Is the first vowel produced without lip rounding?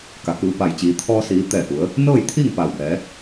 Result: yes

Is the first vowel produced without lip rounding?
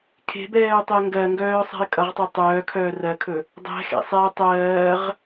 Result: yes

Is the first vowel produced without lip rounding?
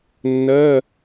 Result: yes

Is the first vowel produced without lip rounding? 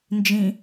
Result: yes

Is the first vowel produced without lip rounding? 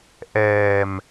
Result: yes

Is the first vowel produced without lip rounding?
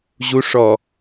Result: no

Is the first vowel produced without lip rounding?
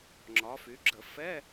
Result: no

